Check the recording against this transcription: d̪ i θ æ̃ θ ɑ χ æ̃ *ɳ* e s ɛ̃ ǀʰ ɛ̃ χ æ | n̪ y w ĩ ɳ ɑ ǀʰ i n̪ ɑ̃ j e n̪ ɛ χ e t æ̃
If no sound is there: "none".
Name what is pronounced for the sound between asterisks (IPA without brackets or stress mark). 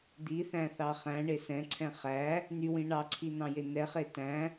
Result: ɳ